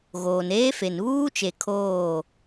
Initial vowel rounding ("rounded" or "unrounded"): rounded